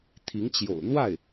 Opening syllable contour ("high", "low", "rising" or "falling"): rising